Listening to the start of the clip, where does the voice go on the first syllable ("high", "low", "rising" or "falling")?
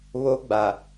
high